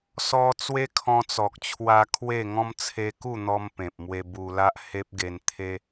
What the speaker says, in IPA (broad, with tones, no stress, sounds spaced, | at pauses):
s ɔ˦ t͡s w e˦ kʰ ɔ̃˧ t͡s ɔ˨ k̚ t͡ɕʰ w a˧ kʰ w e˥˧ ŋ ɔ̃˦ m t͡sʰ e˧ k u˥˧ n̪ ɔ˧ m p ẽ˨ p̚ m w e˧ b u˧ l a˦ ʔ h e˦ p̚ ɡ e˧ n t̪ʰ e˦